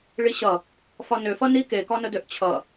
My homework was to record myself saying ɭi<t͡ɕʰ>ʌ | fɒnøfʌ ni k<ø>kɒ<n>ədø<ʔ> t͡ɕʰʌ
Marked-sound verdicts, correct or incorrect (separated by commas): incorrect, incorrect, correct, correct